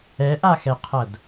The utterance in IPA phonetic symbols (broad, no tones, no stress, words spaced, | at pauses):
ɛʔaxɛqʰʌd